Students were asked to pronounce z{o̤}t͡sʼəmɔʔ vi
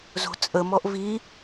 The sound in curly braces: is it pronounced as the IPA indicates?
yes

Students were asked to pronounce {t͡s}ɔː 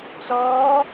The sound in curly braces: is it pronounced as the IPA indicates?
yes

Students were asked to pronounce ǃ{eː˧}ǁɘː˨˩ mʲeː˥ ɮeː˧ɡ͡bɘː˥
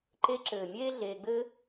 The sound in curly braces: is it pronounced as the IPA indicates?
no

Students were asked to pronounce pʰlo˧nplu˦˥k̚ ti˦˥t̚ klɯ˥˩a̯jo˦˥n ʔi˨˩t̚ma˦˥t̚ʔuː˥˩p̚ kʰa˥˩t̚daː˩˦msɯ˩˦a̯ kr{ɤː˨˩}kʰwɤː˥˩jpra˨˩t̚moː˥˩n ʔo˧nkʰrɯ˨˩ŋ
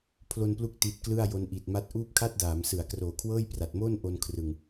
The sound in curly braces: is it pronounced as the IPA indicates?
no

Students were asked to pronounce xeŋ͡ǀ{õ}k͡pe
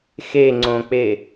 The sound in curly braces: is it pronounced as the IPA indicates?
yes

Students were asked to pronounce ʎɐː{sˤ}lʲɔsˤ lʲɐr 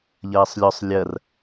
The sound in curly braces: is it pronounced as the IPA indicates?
yes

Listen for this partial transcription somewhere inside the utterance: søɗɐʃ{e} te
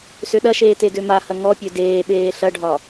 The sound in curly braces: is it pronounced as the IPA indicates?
no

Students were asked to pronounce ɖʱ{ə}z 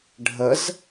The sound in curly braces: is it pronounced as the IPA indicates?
yes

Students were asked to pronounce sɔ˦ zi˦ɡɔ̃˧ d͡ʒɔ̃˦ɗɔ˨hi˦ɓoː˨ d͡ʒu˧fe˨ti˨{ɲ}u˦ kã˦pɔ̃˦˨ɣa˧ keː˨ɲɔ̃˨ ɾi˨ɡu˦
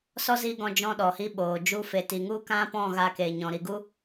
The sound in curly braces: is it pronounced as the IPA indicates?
no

